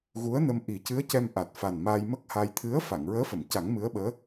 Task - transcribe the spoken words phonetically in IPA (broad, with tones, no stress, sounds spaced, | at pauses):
ɣ u˧˥ ə̯ n ə˧ m ʔ i˨˩˦ c ɨ˧˥ ə̯ c ɛ˧ m ʔ a˨˩ t̚ f a˨˩ n m a˧ j m ə˦˥ k̚ h a˧ j t̪ʰ ɨ˧˥ ə̯ f a˨˩˨ ŋ ɹ əː˧˥ f ə˨˩˨ m c a˨˩˦ ŋ m ɨ˧˥ ə̯ ɓ əː˧˥